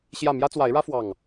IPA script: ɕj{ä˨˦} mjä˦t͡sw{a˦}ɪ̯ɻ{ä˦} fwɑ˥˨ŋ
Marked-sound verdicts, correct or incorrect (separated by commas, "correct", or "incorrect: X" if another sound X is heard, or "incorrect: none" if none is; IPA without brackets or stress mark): incorrect: ä˥˨, incorrect: a˨˦, correct